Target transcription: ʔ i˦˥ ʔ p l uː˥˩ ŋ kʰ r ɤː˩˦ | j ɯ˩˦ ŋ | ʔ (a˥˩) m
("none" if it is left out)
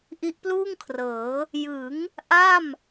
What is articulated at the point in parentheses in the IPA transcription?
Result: a˥˩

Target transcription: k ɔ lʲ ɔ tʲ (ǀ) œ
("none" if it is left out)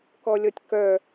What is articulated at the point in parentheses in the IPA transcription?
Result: k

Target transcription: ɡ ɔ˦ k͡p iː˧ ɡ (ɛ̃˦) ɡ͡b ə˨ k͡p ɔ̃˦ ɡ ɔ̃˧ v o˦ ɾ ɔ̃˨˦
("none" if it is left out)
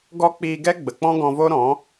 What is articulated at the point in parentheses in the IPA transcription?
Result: ɛ˦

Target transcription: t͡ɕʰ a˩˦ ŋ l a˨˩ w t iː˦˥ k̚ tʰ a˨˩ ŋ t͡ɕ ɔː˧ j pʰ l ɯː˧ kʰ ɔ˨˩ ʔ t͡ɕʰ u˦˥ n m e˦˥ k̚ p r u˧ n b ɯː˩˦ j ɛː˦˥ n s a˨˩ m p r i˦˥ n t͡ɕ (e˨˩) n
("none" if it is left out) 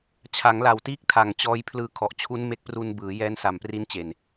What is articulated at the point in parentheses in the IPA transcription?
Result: e˨˩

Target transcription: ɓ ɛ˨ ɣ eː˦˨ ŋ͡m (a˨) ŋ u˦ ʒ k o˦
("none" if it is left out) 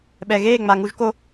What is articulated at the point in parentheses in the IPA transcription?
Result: a˨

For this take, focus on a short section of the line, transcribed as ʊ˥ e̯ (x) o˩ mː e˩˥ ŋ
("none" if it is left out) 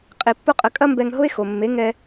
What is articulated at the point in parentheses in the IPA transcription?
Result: x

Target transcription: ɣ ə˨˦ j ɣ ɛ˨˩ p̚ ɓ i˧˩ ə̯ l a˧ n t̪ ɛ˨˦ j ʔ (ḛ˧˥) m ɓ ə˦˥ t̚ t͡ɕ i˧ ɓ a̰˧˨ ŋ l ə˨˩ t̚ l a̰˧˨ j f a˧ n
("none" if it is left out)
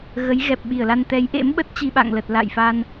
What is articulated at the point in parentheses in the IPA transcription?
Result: ḛ˧˥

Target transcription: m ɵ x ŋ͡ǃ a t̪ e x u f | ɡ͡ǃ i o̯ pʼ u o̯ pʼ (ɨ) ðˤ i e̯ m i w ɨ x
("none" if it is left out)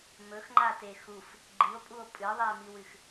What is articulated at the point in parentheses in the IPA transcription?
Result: ɨ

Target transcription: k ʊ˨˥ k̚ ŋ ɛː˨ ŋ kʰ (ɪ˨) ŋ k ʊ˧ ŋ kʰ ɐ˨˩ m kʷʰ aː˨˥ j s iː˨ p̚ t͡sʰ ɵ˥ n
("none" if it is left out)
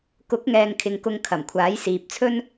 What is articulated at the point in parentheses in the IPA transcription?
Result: ɪ˨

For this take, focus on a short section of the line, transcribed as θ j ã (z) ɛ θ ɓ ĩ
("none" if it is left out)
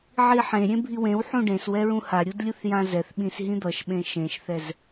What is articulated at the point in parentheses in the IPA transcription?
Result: z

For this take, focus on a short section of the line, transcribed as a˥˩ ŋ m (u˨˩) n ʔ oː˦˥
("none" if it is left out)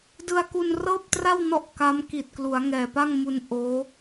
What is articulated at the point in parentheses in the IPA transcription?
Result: u˧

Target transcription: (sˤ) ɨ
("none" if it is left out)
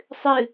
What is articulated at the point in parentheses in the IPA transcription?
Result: sˤ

